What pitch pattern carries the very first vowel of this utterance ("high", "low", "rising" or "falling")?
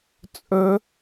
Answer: high